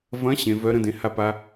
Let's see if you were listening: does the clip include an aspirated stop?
no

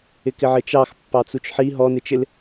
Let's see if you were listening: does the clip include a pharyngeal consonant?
yes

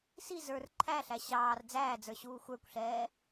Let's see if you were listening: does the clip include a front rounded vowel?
no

